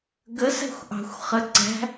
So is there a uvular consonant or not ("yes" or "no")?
yes